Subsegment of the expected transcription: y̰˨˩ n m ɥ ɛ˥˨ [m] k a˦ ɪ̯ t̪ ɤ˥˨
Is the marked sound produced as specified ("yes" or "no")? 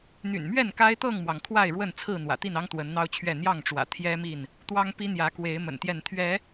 no